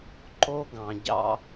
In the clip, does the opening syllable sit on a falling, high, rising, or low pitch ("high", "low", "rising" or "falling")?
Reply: high